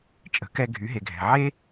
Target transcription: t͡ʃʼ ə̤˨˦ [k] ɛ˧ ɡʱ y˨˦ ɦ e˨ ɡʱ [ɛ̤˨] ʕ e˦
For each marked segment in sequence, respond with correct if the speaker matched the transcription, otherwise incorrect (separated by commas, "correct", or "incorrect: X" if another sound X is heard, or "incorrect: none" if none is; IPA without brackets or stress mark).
correct, correct